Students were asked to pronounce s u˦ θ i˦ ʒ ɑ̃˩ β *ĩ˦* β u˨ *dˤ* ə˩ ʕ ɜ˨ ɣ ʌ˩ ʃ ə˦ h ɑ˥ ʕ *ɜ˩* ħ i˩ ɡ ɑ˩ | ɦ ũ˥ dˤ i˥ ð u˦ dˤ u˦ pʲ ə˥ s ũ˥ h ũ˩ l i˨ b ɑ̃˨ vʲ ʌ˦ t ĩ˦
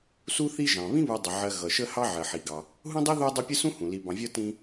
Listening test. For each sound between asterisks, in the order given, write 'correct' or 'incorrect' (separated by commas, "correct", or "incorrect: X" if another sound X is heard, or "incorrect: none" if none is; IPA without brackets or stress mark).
correct, correct, correct